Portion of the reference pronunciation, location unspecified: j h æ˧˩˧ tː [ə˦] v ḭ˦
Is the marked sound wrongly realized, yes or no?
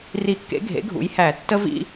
no